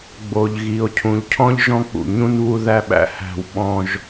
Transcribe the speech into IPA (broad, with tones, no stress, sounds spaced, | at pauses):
ɡ͡b o˨ ʎ ɣ i˨ o̯ cʰ ũ˨ ʎ cʰ ɔ̃˦ ʎ ʒ ɔ̃˦ k͡p ṵ˨ ɲ ũ˦ n β u˦ ð æ˦ ɓ æ̰˦ h æ̤˦˨ w ɓ ɔ̃˦ ʒ